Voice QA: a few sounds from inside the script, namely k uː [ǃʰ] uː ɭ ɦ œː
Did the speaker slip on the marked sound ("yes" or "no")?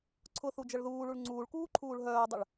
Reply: no